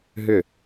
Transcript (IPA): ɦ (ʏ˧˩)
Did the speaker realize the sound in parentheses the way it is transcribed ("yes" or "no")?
yes